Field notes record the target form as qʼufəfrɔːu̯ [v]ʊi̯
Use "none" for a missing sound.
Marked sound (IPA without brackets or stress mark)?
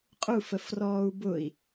b